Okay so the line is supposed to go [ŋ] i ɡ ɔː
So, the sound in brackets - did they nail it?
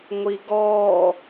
no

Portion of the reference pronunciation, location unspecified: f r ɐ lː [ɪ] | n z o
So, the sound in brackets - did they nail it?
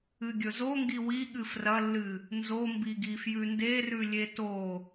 no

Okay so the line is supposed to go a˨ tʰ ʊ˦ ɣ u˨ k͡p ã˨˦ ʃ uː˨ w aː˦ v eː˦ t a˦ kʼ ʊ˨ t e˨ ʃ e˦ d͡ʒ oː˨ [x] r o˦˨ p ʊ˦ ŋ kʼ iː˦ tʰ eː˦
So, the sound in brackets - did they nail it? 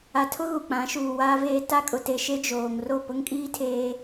no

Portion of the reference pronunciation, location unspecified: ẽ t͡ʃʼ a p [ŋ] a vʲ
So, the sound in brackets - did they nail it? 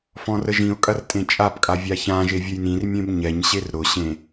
no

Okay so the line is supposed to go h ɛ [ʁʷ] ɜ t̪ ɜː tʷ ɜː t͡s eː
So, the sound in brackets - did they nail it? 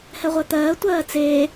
yes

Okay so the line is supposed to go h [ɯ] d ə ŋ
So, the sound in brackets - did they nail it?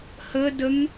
no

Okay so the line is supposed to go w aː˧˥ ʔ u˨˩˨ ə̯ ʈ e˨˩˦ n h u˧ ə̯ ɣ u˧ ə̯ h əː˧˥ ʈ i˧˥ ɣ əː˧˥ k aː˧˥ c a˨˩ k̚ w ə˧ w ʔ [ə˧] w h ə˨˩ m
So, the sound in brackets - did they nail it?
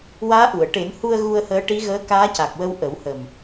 no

